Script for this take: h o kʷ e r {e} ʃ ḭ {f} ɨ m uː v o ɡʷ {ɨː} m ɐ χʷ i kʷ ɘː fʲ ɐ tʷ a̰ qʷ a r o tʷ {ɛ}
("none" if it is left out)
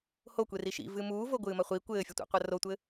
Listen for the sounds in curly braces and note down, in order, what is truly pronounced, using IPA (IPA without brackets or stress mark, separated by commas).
i, v, ɨː, ɘ